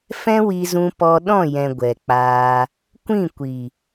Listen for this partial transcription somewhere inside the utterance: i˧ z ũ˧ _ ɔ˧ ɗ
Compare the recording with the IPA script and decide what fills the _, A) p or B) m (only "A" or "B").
A